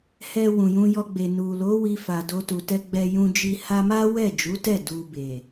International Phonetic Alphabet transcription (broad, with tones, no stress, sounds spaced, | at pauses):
h ɛ˧ w ũ˨ j ũ˧ j ɔ˧ ɡ͡b e˨ n u˨ l o˨˦ w i˧ f a˨ d o˧ t u˨ t ɛ˧ ɡ͡b ɛ˧ j ũ˧ d͡ʒ i˧ h a˧ m a˦ w ɛ˦˨ d͡ʒ u˨˦ t ɛ˦˨ d u˨ b e˨